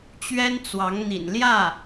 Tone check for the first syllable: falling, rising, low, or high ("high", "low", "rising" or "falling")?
high